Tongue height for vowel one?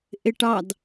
high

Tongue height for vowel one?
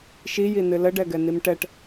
high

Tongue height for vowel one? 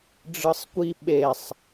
high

